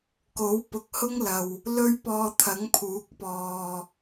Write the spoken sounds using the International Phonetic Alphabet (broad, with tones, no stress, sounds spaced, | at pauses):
k o˨˥ w p ʊ˨ k̚ h ʊ˥ ŋ l ɐ˨ w | l ɵ˥ ɥ p ɔː˧ t̪ʰ ɐ˨˥ ŋ pʰ uː˨˥ k̚ p ɔː˨